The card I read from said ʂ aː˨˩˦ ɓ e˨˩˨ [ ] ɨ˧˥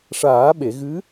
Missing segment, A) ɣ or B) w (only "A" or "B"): A